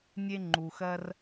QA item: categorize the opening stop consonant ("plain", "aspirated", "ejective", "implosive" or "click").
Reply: click